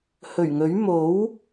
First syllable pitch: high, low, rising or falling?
low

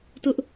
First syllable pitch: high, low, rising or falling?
high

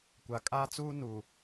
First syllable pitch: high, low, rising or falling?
low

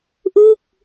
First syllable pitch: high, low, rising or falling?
falling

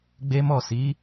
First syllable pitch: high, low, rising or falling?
high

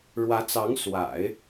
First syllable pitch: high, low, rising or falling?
rising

